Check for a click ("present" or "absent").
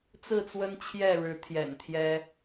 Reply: absent